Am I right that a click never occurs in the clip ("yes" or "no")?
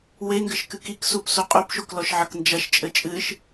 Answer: yes